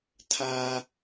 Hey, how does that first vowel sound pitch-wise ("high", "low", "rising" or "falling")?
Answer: high